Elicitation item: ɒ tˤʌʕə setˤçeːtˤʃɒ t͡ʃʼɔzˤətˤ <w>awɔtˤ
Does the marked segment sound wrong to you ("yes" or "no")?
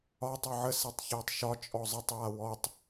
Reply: no